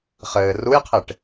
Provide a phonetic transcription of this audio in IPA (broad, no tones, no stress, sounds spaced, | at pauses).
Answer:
χ ɘː r u j qʰ e ʈ